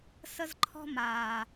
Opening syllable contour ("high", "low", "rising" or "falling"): high